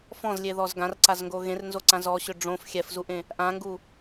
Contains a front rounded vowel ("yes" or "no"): yes